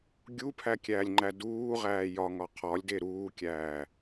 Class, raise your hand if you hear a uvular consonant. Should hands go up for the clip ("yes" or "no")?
yes